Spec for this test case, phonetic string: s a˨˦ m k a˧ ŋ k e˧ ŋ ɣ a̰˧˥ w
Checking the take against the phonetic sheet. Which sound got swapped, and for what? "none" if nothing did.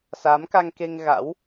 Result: none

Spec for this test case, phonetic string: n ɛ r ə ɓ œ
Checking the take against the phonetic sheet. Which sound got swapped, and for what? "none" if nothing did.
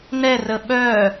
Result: none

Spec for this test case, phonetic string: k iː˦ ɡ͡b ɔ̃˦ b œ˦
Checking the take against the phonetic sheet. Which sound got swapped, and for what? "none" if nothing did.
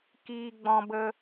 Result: œ˦ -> ə˦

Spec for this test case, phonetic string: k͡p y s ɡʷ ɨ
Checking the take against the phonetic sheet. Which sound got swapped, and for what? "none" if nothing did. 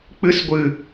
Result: y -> ɨ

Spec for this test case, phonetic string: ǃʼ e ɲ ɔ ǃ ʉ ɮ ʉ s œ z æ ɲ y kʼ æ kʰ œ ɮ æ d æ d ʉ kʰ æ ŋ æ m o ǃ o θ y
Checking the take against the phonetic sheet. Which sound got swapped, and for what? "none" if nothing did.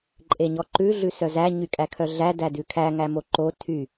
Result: θ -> tʰ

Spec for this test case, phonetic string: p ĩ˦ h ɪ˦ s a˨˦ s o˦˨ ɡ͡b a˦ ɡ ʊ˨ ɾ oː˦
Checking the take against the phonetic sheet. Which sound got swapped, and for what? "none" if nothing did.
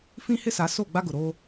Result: p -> f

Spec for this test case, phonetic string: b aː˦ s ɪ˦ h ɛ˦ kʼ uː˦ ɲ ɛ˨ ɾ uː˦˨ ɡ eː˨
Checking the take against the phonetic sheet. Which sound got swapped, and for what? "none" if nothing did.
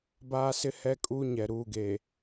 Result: none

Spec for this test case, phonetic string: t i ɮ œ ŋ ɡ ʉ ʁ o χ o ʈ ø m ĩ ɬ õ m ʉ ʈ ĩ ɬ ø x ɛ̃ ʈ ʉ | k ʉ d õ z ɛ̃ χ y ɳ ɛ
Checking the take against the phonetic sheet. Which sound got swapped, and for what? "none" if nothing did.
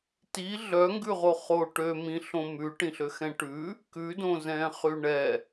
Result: none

